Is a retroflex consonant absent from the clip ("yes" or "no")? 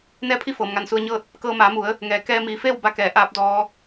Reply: yes